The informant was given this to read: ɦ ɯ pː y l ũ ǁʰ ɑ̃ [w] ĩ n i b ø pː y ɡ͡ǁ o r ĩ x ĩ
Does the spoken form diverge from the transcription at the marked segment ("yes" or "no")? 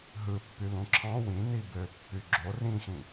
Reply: no